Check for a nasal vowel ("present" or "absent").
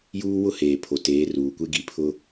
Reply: absent